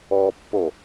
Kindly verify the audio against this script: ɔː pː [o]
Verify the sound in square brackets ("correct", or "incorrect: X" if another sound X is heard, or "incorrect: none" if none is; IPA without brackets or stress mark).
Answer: correct